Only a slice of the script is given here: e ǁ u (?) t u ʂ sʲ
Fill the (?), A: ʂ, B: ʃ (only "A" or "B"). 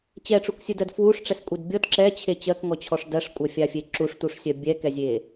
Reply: A